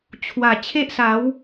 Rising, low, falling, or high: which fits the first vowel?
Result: low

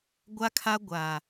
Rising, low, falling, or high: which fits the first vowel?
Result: high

